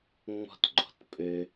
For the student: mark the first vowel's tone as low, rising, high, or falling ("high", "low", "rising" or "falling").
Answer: high